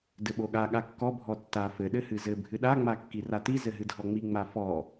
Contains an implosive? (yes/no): yes